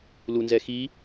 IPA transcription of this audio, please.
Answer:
l u n z ɛ x i

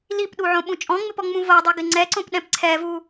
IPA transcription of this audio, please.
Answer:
l i p ɗ u ʕ õ ɓ ũ t͡ʃʼ ɔ̃ ŋ͡m ɪ p ɔ ŋ͡m ũ v o dˤ i ɡ ɪ ŋ͡ǀ ɛ ǀ õ p ɗ ɛ̃ p ǀʰ ɛ v u

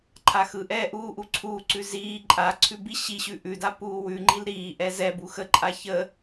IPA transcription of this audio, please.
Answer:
ǃʰ a x ɯ ʔ ɛː ʔ uː ʔ u ǀʰ uː ǀ ʉ z iː ǃʼ a ǀʰ ʉ b i ɕ i ɕ ʉ ʔ ʉ d a p uː w ʉ ŋ͡ǃ i l ɾ iː ʔ ɛ z ɛ b u x ə ǃʼ a ç ə

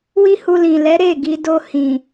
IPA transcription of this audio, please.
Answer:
w i˦ h u˧ l ĩ˨ l ɛ˨˦ ɾ e˦˨ ɡ i˧ d o˧ h ĩ˨

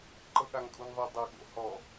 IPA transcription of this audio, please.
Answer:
ǃ ɤ ɠ a ŋ kʼ u n ðˤ i dˤ ɛ ɠ o̰ h ɔ

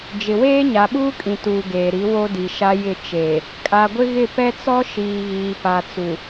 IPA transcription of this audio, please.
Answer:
d͡ʒ ɪ˨ w eː˦ ɲ a˨ ɓ uː˦ kʼ ĩ˨ t uː˨ ɡ eː˨ ɾ i˨˦ w o˦ d i˨ ʃ a˦ j ɪ˦˨ t͡ʃ eː˨ | kʼ a˨ ɡʷ ɪ˦ ɣ ɪ˦˨ p ɛ˦ t͡s ɔ˦ ʃ iː˨ ɣ iː˨ p a˨ t͡s u˨

